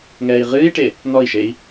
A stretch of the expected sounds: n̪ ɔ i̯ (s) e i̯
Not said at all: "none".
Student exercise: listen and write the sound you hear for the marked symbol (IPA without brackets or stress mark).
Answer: ʃ